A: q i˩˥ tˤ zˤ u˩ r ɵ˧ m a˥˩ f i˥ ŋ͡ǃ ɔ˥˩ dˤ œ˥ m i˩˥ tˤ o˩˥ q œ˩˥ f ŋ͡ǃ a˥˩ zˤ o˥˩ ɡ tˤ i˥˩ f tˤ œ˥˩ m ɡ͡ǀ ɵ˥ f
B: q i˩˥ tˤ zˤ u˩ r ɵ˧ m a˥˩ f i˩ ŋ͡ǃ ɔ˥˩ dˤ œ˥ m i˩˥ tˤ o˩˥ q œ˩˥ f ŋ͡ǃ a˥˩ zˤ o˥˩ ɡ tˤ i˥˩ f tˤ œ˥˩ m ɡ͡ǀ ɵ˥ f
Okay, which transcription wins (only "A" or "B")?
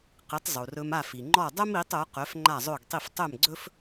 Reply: B